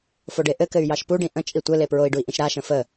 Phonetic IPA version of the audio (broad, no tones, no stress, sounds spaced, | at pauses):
f o ɖ e ʔ ɘ k ɘ y̯ j ɑ ʃ p u ɖ ĩ ʔ ə̃ t͡ʃʼ i tʷ ɘ l e p ɹ o i̯ ɖ u i̯ ʔ ĩ ʃ ɾ a ʃ ə̃ f ə